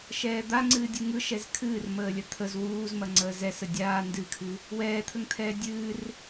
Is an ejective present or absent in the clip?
absent